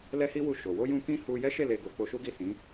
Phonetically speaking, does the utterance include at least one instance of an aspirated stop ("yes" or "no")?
no